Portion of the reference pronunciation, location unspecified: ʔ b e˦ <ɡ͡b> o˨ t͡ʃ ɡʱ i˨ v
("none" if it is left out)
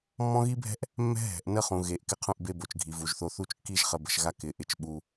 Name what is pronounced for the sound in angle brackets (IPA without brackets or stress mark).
b